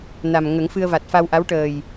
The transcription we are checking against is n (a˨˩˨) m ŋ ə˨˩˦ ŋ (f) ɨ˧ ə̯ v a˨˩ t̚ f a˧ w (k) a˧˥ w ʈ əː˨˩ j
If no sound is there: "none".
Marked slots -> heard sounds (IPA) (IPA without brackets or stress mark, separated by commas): a˨˩, f, ʔ